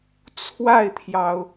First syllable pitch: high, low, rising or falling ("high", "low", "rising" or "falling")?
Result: falling